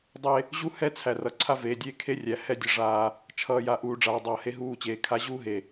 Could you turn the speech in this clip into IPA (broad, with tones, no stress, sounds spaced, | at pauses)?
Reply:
dˤ e˦ | ʑ u˦ h ɛ˦ t͡sʰ æ˨ r ʌ˨ ǀʰ a˦ v eː˨ dʲ eː˦ kʰ e˦ rʲ æ˨ h ɛ˦ dʲ ʌ˨ ʐ aː˦ | t͡ʃʰ ʌː˨ j a˨ ʔ uː˨ ɖ͡ʐ aː˨ dˤ ʌː˨ h e˦ ɦ uː˦˨ t͡ɕ eː˨ kʰ a˦ ʑ uː˦ ɦ e˨